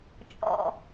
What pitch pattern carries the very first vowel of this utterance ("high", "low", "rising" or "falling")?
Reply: low